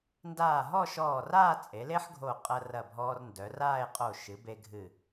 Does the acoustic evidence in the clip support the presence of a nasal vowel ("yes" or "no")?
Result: no